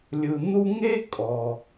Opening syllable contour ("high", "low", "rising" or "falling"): low